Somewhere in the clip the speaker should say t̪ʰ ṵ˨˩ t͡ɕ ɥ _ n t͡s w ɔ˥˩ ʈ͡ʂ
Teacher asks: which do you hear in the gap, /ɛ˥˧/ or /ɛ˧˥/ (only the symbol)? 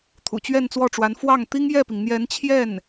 ɛ˥˧